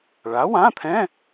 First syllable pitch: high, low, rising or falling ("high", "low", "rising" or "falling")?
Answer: rising